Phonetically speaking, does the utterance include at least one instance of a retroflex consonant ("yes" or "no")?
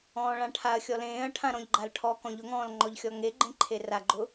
yes